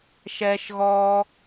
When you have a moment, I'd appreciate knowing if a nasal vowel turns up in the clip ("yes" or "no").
no